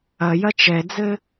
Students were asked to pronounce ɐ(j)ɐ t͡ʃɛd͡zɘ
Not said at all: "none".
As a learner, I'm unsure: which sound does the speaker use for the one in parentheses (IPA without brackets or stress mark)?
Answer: j